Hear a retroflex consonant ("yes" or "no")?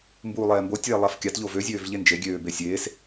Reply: no